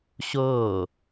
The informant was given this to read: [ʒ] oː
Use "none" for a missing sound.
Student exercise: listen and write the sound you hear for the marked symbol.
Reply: ɕ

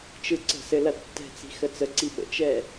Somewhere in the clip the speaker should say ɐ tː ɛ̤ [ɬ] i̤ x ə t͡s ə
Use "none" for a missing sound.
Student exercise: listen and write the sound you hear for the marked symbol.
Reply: t͡s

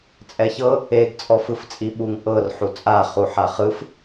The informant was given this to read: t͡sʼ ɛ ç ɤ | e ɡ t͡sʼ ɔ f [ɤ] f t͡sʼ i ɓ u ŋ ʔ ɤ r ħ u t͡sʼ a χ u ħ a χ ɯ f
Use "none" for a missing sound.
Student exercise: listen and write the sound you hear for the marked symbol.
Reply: ɯ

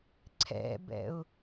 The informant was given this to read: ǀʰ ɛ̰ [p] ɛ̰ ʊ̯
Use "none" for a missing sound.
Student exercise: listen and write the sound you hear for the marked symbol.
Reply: b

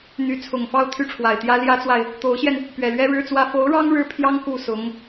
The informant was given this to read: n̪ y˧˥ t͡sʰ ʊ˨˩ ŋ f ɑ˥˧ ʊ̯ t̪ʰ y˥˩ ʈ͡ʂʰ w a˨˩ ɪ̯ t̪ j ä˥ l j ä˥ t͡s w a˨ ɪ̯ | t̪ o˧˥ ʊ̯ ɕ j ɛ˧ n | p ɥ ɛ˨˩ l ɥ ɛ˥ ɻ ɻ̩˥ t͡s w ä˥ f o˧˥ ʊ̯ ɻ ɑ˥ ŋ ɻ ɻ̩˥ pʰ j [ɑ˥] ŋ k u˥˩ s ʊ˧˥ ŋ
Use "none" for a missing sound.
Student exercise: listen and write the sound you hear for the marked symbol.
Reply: ɑ˥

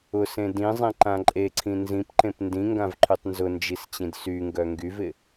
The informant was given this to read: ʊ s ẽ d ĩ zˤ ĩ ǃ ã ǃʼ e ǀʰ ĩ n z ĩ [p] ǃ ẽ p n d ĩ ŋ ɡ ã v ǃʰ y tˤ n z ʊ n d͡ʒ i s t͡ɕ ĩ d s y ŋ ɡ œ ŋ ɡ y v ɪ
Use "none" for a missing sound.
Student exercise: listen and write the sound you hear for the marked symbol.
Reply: p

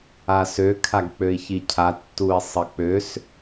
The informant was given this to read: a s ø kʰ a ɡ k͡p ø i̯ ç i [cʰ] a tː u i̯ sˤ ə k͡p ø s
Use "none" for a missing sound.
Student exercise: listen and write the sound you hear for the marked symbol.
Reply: cʰ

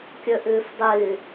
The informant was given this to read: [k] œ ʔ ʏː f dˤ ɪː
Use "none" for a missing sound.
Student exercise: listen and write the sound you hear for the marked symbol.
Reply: kʲ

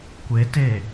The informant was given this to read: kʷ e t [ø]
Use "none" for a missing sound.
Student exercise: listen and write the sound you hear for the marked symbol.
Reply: e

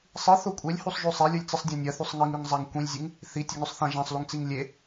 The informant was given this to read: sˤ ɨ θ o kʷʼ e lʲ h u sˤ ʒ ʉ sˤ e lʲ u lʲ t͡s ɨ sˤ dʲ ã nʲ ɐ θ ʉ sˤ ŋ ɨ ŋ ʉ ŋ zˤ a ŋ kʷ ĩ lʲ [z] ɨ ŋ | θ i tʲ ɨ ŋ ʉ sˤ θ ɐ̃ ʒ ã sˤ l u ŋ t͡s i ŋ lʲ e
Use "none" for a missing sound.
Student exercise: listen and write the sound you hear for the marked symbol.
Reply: zʲ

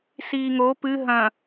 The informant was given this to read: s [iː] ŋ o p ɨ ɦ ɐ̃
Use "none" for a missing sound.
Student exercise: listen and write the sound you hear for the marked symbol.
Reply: iː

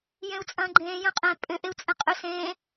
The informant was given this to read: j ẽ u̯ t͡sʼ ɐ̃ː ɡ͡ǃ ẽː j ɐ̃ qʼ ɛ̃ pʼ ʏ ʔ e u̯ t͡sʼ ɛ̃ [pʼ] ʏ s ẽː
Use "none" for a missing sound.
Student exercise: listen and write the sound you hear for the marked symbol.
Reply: qʼ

